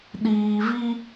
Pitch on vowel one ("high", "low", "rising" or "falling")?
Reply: low